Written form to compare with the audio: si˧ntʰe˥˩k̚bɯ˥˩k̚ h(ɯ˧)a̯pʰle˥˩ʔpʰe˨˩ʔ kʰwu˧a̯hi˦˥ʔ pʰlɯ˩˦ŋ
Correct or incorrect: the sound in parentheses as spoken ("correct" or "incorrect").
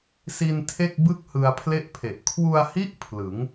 correct